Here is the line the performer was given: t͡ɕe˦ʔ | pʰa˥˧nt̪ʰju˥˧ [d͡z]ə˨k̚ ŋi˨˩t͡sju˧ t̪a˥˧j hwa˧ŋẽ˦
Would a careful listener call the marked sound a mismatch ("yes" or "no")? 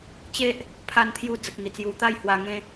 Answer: no